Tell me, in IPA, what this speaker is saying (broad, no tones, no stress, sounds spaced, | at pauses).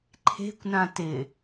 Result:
ǃʰ e̤ kʷ n ã t ɪ